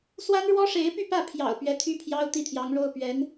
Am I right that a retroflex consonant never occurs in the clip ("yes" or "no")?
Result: no